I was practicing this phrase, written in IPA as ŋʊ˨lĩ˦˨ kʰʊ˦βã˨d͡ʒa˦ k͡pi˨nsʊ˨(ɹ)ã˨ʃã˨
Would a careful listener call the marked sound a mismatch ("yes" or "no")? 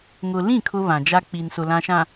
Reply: yes